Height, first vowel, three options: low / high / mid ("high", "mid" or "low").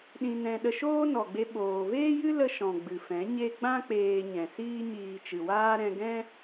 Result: high